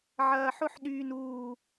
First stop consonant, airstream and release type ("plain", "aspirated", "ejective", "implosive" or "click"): implosive